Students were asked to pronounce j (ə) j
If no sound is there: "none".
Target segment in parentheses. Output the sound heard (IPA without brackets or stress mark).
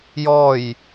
ɔ